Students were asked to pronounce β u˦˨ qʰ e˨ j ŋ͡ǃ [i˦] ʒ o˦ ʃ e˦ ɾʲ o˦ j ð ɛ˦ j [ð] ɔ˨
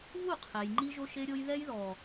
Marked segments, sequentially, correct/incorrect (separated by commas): correct, correct